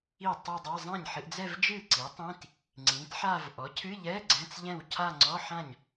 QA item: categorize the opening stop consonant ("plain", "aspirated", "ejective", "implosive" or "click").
plain